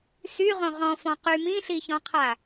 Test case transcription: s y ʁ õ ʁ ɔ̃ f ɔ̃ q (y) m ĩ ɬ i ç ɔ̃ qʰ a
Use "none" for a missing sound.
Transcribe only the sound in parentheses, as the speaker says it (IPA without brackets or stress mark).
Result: y